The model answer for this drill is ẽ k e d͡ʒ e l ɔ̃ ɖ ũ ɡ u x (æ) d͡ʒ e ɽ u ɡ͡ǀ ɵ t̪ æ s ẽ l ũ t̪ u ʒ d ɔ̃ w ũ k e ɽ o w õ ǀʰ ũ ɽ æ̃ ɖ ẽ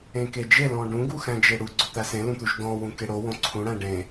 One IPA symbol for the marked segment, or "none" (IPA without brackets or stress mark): æ̃